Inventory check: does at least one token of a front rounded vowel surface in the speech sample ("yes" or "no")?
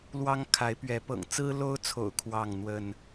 no